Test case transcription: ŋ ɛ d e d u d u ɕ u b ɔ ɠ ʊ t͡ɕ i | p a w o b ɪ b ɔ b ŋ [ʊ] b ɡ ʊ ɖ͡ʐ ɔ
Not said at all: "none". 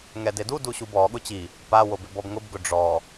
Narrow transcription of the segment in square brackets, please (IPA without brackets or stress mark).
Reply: ʊ